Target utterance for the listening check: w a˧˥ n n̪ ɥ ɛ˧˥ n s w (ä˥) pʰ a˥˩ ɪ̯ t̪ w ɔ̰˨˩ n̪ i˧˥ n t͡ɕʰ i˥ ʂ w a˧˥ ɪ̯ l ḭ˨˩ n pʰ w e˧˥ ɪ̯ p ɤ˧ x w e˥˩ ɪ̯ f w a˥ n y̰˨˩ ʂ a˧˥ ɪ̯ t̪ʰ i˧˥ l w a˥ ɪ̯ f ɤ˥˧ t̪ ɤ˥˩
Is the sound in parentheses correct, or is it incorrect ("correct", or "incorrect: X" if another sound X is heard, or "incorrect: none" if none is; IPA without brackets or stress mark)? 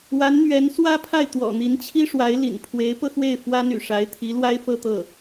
correct